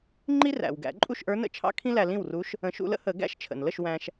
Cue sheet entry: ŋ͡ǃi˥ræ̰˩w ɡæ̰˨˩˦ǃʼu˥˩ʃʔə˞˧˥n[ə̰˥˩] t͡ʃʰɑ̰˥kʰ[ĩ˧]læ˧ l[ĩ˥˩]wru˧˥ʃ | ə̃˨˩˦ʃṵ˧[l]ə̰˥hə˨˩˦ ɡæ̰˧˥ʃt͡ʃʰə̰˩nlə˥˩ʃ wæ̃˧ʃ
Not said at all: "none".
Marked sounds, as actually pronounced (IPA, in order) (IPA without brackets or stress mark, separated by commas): ə̰˥˩, ĩ˥, ĩ˥˩, l